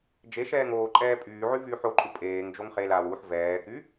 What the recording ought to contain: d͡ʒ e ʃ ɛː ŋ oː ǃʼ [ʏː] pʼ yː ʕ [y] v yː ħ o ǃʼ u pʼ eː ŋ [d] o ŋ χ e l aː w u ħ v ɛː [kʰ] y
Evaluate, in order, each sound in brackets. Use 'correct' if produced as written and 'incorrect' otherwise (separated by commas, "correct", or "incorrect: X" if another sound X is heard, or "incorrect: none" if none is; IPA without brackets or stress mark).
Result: incorrect: ɛː, correct, incorrect: d͡ʒ, incorrect: k